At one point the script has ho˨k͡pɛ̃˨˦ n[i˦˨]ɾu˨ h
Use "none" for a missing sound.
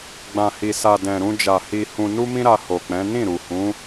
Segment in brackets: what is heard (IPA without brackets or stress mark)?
ĩ˦˨